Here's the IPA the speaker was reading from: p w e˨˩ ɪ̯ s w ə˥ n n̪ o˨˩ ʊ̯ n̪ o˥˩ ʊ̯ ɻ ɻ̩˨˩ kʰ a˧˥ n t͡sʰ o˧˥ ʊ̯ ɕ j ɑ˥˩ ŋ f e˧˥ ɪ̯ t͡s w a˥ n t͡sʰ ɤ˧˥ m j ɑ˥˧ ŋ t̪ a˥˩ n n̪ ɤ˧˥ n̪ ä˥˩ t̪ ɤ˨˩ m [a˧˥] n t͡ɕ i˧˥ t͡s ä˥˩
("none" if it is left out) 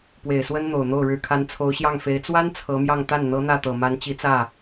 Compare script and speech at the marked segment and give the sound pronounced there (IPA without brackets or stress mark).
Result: a˧˥